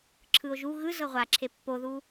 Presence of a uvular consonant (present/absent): present